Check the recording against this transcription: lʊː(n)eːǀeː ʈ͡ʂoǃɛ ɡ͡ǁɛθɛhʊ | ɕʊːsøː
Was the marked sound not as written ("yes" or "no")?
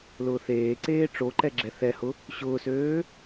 yes